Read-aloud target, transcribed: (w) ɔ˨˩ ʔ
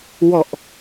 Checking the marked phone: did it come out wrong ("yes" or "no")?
no